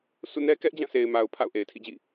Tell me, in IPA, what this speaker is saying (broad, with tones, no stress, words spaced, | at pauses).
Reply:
sʰṵ˦˨nɛ˦kɛ˦ʔ d͡ʑã˦˨sʰe˨ɪ̯ma˨ʊ̯ pʰa̰˦˨ʊ̯ʔe˨ɪ̯tʰḭ˦˨d͡ʑḭ˦˨